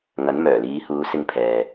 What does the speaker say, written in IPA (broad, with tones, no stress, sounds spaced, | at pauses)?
ŋ ɐ˨˥ n m œː˨˩ l iː˨˧ h uː˨˧ s ɪ˧ ŋ pʰ ɛː˨